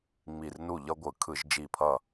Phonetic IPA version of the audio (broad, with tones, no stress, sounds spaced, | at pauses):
ŋ͡m i˧˩ r n u˥˩ ʎ ʌ˦ ɡʷ ɯ˧˩˧ kʰ ɯ˧˩˧ ʒ d͡ʒ i˧˩ pʰ ʌ˥˩